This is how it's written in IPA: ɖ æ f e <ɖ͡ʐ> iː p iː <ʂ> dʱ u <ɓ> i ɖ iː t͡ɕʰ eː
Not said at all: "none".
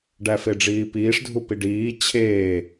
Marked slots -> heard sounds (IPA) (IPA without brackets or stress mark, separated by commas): ɖ͡ʐ, ʂ, p